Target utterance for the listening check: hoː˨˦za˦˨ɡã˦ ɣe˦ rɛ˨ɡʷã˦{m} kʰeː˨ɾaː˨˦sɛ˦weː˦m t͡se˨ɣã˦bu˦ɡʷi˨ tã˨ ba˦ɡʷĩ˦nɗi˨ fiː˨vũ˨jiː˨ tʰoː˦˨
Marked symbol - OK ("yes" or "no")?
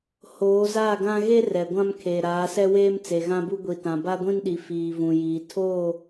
yes